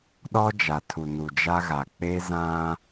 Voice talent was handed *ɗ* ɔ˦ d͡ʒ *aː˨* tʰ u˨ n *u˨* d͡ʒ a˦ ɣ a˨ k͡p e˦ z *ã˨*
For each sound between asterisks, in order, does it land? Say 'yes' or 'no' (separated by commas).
yes, no, yes, no